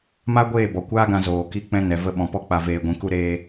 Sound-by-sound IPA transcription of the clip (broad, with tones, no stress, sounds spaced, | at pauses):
m a˦ ɡʷ eː˦˨ b ɔ˨ kʷ aː˦ ɡ ã˧ z oː˨ k i˦ k͡p ɛ̃˦ n ɛ˨ v ə˧ ɓ ɔ̃˨ p ɔ˧ k͡p a˧ v eː˧ ɡʷ ĩ˧ k u˦ ɾ eː˦